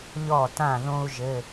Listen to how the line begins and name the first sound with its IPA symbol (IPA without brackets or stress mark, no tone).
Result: ʎ